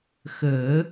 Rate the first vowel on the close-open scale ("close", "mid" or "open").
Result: mid